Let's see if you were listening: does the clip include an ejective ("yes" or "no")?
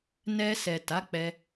no